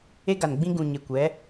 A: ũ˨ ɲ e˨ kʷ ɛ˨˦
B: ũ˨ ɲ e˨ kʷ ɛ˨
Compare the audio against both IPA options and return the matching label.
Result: A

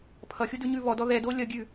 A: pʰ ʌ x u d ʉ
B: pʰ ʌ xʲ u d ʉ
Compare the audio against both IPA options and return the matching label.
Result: B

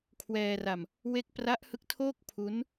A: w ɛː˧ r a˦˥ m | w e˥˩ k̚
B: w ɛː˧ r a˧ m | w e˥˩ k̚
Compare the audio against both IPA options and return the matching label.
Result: B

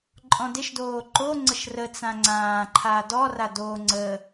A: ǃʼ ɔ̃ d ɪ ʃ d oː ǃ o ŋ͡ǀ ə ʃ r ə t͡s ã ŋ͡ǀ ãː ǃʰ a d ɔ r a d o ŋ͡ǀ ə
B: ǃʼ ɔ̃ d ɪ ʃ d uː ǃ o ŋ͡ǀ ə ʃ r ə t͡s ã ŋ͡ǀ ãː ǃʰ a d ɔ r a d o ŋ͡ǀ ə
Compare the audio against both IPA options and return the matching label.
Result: A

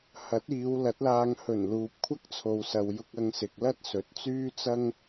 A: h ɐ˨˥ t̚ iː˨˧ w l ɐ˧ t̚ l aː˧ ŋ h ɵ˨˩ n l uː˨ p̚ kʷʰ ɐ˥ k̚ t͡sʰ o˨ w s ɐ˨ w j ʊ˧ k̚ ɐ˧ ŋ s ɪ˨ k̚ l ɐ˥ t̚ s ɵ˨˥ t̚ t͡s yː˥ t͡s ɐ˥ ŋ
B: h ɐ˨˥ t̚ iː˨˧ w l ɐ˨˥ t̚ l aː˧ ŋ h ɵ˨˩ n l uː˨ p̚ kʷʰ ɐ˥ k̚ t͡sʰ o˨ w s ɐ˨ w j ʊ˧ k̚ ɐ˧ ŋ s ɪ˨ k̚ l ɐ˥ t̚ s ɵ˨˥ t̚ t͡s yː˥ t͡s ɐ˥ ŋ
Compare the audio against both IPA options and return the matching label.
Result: B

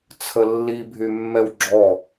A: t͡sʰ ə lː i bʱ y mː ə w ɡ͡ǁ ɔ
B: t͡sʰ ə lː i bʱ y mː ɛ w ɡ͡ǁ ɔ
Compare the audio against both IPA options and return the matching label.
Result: B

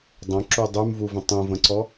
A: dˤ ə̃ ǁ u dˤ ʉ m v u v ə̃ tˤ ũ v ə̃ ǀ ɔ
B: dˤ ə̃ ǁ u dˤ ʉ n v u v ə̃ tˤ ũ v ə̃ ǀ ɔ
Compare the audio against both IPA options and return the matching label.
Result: A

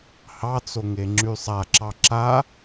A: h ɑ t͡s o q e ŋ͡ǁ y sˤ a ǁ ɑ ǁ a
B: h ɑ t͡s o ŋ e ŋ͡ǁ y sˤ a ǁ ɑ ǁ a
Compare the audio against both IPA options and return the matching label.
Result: B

